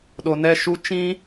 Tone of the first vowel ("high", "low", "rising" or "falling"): low